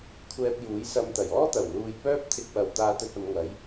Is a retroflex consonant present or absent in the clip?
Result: absent